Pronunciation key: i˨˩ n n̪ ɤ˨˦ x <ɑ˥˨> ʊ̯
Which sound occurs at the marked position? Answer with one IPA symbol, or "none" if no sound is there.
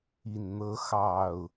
ɑ˨˩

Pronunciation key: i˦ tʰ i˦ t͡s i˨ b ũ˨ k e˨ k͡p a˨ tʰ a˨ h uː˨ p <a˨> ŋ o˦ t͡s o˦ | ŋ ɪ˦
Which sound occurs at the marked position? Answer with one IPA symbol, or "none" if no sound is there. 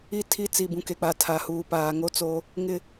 aː˨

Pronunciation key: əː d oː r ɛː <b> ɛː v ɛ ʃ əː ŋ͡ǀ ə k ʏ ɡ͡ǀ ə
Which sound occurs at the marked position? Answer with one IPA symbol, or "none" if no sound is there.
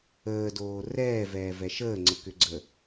v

